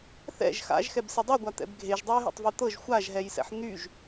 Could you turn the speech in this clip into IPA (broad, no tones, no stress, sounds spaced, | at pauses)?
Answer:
θ ɛ̰ ʒ x a̰ ʒ x ɛ b s e dˤ y ɡʷ a t̪ ɛ̰ b ɡʱ e ʒ dˤ o j ɦ ḛ tˤ v y t̪ ɤ ʒ xʷ a ʒ ɦ ɛ j s ɛ̰ ħ n̪ y ʒ